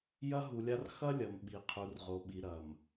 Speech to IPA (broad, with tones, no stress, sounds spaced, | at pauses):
j ɐ˦ ɦ u˨ lʲ a˦ r x ɐ˦ lʲ ɐ˨ m ɓ i˨ qʰ u˨ r ʁ o˨ ɓ i˨ ɾ ɐ˨ m